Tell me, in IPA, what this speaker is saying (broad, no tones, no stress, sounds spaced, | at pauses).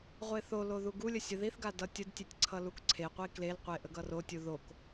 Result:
ʁʷ e θ o l o ð u ɡ u lʲ ə sʲ ə ð i θ ɡ a d ʌ tʲ ə d tʲ e tʲ ǀʰ ʌ l u k ǀʰ e qʷ i k l e l qʷ e ʔ ə ɡ ʌ r o tʲ u ð o k